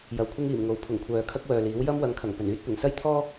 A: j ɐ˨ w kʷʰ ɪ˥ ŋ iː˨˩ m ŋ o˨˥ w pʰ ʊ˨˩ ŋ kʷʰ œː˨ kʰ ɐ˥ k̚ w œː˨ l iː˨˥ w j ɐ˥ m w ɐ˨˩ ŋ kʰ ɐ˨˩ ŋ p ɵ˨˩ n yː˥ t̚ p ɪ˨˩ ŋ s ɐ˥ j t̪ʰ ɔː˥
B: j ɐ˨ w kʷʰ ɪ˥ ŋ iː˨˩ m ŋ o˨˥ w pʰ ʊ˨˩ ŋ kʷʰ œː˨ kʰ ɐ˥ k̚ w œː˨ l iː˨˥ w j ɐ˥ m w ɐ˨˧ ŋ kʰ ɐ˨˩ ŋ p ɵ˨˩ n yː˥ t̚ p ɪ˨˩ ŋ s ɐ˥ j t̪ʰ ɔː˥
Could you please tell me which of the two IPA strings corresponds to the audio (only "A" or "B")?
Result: B